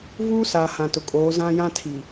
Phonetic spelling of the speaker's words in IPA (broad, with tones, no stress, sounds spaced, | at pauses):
v uː˦ s a˨ h ã˨ t ʊ˨ kʼ oː˨˦ z ã˦ j ã˦ tʰ i˨